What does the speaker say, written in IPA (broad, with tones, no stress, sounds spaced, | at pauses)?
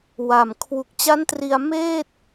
w a˨˩ m kʰ w u˨˩ k̚ t͡ɕ a˦˥ n t r i˧ a̯ m eː˥˩ t̚